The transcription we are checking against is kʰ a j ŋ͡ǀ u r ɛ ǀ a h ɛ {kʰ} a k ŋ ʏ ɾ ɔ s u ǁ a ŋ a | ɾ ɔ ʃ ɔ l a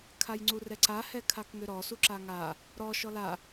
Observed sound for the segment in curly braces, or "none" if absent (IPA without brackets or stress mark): kʰ